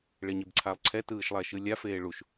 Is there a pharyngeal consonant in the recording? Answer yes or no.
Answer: no